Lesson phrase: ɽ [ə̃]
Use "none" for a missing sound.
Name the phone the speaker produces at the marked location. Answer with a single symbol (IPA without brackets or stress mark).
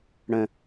ə̃